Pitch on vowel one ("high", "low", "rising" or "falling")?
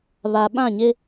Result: low